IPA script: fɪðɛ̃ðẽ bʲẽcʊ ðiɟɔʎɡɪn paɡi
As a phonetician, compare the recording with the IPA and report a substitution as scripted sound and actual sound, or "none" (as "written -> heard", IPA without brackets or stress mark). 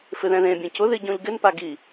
ɔ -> ɔ̃